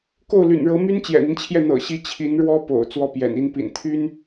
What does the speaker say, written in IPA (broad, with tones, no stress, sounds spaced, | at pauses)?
k o˥˩ ʊ̯ l y̰˨˩ n ɻ ɤ˧˥ m y˥ n t͡ɕ j ɛ̰˨˩ n̪ i˦ n t͡ɕʰ j ɛ˥˩ n̪ ɤ̰˨˩ ɕ i˧˥ t͡ɕʰ i˧˥ n ɻ w ɔ˥ p o̰˨˩ ʊ̯ t͡s w ɔ˥˩ p j ɛ̰˨˩ n i˥ n p ḭ˨˩ n t̪ʰ y˥ n